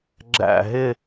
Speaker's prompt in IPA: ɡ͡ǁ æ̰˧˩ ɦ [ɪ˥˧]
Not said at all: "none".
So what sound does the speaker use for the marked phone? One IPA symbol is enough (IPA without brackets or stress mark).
ɪ˥˧